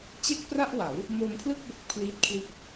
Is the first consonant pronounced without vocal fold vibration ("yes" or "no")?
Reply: yes